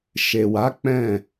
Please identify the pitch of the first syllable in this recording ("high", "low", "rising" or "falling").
low